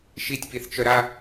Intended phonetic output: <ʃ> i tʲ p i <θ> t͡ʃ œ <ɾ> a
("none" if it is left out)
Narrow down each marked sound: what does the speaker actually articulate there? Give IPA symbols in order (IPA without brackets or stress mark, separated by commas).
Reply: ʃ, θ, ɾ